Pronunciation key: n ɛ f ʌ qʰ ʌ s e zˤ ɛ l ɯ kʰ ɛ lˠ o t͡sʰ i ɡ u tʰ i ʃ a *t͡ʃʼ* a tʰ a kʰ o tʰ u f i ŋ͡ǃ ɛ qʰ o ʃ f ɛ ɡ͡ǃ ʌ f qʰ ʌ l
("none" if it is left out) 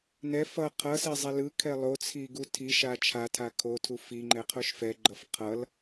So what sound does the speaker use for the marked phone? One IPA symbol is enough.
t͡ʃʰ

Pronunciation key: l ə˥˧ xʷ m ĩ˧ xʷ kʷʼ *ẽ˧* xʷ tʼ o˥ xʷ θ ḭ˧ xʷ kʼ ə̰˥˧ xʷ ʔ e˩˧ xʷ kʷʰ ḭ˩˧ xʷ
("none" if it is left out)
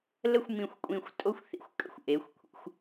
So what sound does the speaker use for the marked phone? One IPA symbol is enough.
ĩ˧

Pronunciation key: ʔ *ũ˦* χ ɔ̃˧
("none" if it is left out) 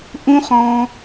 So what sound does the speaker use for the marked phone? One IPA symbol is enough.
ũ˦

